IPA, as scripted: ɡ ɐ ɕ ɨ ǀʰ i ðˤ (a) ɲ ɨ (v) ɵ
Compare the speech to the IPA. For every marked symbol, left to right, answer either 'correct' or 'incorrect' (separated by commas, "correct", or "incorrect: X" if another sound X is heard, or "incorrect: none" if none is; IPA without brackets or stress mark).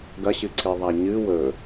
correct, incorrect: w